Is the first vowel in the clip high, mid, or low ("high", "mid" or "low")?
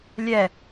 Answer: mid